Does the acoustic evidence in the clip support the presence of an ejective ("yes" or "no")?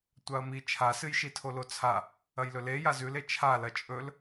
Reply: yes